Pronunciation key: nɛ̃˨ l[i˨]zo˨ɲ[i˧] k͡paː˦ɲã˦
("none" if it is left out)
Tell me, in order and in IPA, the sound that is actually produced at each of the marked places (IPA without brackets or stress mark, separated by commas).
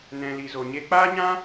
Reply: i˨, e˧